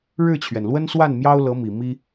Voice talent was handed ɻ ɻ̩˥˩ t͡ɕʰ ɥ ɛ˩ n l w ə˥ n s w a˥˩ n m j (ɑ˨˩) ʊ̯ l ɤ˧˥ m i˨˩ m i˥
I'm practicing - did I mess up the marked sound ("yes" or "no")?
yes